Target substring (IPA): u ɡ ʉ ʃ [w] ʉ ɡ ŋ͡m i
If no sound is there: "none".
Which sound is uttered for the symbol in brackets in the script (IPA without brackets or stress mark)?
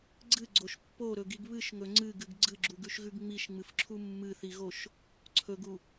ɣ